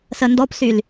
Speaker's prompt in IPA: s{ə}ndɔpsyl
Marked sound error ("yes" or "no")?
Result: no